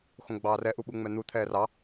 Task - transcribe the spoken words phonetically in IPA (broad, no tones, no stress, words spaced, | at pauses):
xõɡ͡bɑːrɛ ʔuɓuŋ͡mɛn̪u t̪ʰɛːrɑ